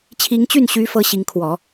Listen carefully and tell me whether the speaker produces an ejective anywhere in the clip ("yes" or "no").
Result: no